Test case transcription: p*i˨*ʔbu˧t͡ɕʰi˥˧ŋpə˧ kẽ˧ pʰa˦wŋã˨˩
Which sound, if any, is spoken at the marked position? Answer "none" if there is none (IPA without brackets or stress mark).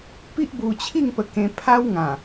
i˦